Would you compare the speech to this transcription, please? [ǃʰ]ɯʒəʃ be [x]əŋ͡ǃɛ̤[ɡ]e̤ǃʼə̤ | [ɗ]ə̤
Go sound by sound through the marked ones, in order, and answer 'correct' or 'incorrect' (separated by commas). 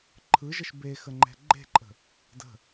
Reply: correct, correct, incorrect, incorrect